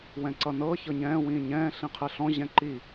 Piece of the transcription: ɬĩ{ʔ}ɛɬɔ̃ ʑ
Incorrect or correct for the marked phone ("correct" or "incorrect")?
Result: incorrect